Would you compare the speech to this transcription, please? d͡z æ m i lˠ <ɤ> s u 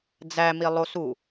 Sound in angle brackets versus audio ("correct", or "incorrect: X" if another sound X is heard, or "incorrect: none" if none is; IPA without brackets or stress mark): incorrect: o